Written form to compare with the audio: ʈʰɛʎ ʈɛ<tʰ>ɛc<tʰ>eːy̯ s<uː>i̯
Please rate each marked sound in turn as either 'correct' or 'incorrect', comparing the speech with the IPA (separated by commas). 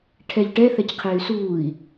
incorrect, incorrect, correct